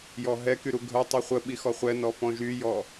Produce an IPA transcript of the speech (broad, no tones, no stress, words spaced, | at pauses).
jɔɦɛky ɾuɡʱœtˤi χʷəɓi xɔχʷɛnɔ fɔ̃ʒyjɔ